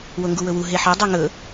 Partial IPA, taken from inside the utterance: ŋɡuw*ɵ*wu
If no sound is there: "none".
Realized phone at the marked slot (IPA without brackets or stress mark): ɵ